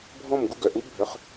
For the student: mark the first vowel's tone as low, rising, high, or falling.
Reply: falling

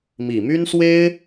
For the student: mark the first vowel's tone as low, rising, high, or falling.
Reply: low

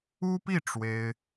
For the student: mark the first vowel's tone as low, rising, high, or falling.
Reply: high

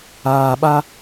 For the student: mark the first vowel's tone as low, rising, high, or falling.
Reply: low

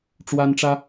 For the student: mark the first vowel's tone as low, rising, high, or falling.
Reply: high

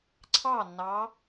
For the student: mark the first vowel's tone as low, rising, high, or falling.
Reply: falling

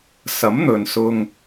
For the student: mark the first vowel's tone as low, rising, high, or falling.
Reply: rising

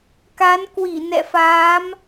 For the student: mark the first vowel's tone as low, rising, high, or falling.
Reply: rising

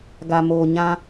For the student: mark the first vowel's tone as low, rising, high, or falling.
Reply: low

